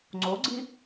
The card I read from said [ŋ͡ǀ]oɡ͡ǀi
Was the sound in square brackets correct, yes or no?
yes